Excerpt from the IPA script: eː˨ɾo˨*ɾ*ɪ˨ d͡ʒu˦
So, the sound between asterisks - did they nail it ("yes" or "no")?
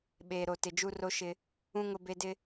no